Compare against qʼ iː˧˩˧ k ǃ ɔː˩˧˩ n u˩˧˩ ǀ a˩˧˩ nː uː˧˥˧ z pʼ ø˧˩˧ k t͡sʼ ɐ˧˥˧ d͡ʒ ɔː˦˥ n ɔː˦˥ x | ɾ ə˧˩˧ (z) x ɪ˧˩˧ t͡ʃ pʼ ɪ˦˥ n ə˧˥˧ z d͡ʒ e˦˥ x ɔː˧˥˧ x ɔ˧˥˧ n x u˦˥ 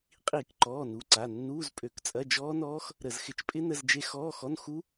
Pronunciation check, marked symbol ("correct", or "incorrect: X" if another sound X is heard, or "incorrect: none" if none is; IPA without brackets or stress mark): correct